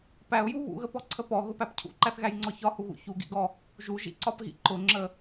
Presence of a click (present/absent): present